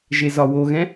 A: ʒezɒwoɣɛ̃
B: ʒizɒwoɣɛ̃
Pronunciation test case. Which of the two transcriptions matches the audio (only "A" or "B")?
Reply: A